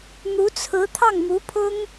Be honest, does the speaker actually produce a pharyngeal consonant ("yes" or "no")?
no